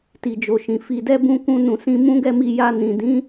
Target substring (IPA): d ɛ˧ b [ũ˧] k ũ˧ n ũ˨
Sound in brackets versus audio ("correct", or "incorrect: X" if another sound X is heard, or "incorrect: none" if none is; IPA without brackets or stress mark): correct